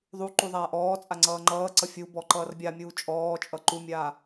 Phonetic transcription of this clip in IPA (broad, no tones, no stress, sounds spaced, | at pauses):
ðˤ u ǃ u ðˤ aː ʔ ɔː t͡sʼ a ŋ͡ǀ ʌː ŋ͡ǃ ʌː ǀ ʌ fʲ u b ɔ ǃ ʌː r bʲ a mʲ uː t͡ʃʼ ɔː t͡ʃʼ ʌ ǃ u mʲ aː